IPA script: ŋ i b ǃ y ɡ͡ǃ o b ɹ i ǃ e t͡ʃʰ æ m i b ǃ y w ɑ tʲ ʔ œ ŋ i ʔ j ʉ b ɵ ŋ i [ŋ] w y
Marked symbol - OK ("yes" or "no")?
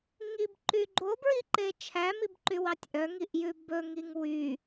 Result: yes